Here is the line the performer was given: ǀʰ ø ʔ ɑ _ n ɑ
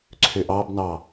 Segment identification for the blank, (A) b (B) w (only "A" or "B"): A